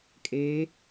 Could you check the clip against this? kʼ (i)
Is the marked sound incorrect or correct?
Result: incorrect